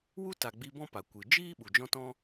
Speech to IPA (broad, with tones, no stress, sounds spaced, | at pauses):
w u˦ t a˨ ɡ͡b i˧ b ɔ̃˦ p a˨ kʷ ɨ˨ d͡ʒ iː˦ ɓ u˨ d͡ʒ ɔ̃˦ t ɔ̃˦